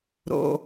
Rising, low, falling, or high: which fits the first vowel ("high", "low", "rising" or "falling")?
low